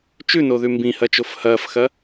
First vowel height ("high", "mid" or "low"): high